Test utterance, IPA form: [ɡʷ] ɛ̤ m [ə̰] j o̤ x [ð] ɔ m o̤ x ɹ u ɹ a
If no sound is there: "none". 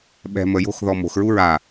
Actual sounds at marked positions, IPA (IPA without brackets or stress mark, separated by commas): ɓ, ə, ð